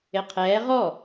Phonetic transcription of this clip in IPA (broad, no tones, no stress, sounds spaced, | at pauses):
ɪ qʰ ɛː ʁ ɔ